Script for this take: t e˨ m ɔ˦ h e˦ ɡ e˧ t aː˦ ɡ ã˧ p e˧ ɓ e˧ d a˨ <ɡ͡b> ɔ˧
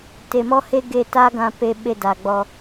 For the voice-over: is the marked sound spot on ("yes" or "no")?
yes